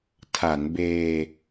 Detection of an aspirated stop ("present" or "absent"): present